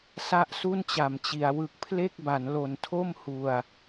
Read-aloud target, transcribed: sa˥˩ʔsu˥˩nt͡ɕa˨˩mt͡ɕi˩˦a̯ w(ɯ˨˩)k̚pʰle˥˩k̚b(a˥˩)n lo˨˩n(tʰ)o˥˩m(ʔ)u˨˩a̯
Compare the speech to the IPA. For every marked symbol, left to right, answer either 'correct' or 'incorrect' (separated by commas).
correct, incorrect, correct, incorrect